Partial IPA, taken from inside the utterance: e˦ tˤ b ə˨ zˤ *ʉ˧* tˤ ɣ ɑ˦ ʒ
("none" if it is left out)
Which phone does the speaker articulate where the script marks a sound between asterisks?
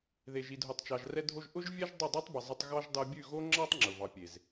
ə˧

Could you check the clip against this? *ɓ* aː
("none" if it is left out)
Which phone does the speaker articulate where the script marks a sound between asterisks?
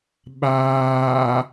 ɓ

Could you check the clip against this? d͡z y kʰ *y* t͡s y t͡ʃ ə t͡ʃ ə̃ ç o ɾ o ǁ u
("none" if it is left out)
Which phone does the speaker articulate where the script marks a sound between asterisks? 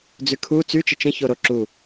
u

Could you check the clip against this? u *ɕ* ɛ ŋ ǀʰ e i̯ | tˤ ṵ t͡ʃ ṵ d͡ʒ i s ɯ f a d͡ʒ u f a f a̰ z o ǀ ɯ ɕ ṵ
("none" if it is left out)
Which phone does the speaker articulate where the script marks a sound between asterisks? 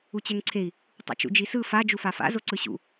t͡ɕ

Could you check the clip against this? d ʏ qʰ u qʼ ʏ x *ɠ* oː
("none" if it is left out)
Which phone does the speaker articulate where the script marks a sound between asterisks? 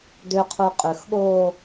ɠ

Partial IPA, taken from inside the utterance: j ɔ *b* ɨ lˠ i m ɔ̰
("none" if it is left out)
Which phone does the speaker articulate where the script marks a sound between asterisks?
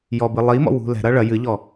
b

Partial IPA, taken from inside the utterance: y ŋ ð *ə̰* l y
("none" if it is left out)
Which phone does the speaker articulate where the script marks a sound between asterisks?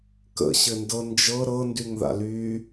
a̰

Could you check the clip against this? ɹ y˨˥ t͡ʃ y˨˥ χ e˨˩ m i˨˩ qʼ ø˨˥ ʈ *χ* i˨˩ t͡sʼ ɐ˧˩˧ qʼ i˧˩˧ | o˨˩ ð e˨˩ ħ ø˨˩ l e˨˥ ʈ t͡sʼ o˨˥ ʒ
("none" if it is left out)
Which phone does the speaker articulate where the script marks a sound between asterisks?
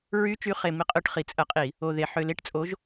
χ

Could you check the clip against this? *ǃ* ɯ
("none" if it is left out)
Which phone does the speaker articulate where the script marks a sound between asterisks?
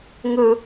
ŋ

